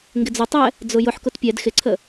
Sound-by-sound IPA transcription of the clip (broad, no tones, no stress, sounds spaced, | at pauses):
ŋ ɡ ɪ d͡z ʊ tˤ ɛ | d͡z ʊ j ʊ ħ k ʊ t pʲ ɛ d x ɪ ǀʰ ə